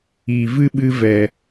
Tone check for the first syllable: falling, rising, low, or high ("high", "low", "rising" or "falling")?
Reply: low